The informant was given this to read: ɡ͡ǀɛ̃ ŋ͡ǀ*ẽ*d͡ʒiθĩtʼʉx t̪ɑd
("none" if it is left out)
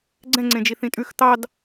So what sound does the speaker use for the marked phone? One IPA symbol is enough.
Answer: ẽ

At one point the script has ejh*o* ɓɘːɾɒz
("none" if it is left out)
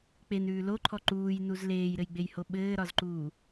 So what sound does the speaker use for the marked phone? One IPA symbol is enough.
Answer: o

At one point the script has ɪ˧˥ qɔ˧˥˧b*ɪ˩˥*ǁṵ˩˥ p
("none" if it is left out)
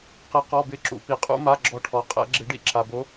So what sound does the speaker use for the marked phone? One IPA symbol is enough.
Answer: ɪ˧˥˧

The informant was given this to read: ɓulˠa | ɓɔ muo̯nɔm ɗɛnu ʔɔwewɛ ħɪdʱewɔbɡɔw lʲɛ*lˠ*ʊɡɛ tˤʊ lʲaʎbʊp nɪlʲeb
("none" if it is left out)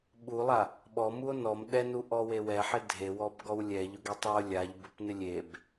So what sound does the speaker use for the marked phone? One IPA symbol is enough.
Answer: ʎ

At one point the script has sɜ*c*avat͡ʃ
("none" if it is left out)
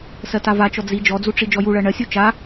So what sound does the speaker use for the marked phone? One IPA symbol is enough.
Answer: t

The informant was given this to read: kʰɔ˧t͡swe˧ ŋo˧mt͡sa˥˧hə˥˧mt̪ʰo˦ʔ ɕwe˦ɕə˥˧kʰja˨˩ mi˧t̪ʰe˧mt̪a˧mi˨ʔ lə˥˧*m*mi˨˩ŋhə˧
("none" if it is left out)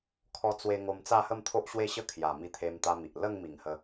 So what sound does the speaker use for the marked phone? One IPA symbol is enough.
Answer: ŋ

